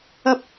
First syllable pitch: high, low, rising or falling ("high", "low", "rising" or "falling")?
high